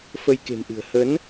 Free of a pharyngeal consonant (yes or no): yes